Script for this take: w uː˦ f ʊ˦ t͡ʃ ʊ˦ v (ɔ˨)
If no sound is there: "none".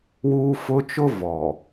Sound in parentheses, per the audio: ɔ˨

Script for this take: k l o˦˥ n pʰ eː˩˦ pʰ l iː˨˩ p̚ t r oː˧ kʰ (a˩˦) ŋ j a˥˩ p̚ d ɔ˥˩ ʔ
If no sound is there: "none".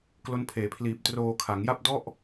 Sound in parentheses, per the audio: a˩˦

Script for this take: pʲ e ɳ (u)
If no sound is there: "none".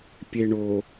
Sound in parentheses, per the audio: o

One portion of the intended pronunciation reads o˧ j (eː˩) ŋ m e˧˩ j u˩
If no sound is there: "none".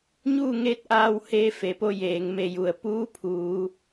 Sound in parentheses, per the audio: eː˩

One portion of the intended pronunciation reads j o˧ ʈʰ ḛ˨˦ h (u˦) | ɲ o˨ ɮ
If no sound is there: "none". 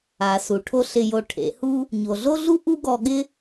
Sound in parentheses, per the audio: u˦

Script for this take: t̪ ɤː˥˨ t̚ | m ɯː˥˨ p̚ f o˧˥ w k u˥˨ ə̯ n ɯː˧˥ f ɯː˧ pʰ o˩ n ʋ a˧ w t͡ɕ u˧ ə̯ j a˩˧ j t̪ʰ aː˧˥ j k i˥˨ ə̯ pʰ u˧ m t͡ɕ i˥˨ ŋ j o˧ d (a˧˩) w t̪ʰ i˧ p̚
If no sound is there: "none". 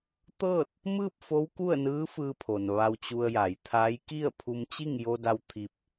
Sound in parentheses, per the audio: a˧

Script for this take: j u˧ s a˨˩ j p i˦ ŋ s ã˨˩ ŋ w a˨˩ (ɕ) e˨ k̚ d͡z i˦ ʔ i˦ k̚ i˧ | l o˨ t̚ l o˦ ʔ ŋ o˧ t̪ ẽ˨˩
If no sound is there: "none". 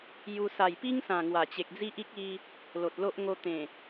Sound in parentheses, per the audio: t͡ɕ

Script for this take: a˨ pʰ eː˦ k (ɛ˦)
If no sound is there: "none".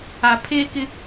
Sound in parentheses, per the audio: ɪ˦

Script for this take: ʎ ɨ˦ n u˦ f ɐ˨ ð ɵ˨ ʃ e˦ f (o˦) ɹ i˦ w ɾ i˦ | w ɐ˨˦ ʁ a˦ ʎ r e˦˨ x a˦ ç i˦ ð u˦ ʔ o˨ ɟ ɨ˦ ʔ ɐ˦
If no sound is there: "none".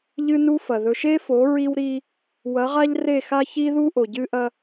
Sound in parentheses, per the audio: o˨˦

